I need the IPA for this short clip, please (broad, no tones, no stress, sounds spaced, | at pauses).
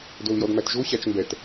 d o l j ɔ d m æ t ʒ o ɕ a t͡ʃ m b ɛ t